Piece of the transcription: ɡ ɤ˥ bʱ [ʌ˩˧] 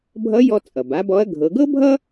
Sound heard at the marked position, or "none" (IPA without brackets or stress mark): ʌ˥